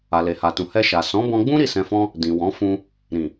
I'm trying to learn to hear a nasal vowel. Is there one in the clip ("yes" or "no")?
yes